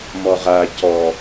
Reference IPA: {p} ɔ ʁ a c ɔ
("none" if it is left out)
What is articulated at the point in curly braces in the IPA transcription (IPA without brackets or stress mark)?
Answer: m